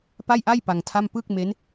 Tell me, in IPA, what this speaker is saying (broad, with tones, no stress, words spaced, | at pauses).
pa˥˩jʔa˥˩j pa˧ŋtʰa˥˩m pɯ˥˩k̚ me˦˥n